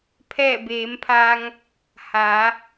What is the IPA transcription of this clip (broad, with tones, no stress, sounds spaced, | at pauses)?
pʰ ɛː˧˩ b eː˩˧ m pʰ a˧ ŋ | h a˩˧